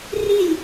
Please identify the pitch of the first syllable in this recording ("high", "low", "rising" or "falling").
falling